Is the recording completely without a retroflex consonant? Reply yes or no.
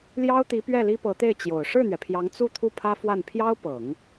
no